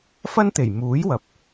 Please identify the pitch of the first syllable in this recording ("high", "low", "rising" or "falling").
high